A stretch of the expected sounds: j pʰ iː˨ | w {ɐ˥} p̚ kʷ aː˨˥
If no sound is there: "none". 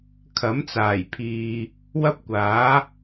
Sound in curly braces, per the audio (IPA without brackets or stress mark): ɐ˥